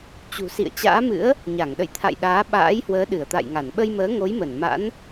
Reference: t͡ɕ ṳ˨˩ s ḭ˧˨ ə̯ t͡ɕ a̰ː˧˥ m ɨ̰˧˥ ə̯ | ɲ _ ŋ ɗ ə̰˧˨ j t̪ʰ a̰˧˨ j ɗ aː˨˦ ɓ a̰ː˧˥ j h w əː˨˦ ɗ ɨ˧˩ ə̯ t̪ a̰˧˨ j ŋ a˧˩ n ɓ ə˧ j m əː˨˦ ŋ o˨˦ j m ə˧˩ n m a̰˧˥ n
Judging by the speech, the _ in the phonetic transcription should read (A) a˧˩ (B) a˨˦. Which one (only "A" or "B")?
A